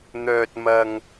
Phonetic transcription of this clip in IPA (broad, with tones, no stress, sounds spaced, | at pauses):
n̪ œː˨ t̚ m ɐ˨ ŋ